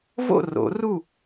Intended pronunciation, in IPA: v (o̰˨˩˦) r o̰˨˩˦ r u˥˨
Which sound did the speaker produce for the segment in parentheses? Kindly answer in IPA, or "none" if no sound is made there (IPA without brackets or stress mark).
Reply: o̰˥˨